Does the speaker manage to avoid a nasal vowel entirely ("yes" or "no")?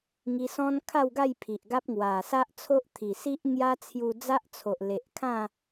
no